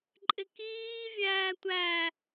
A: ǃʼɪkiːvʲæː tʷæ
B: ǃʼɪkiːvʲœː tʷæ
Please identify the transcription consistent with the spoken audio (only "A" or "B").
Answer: A